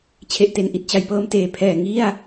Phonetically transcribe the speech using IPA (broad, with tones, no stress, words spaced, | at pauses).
t͡ɕʰe˨˩ʔte˩˦nʔi˨˩t̚ t͡ɕa˩˦jpɤː˧m teː˨˩pʰɛː˨˩ ŋi˥˩a̯